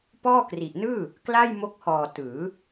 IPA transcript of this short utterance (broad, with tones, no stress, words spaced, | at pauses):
pɔː˥˩ kri˨˩ʔnɯː˥˩ | kla˥˩jmo˦˥k̚hɔː˨˩ tɯː˩˦